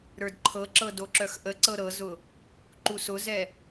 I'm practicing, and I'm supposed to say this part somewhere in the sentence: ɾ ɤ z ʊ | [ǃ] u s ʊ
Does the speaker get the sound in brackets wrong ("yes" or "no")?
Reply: no